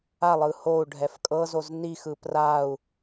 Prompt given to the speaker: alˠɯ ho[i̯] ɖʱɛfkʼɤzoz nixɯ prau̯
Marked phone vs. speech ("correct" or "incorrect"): incorrect